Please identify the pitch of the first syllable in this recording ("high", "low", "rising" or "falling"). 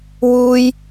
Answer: high